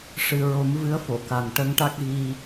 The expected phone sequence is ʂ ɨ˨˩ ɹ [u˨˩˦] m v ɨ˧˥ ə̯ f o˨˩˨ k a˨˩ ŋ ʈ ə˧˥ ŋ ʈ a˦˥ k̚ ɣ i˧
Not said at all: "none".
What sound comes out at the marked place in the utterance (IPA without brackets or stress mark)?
o˨˩˦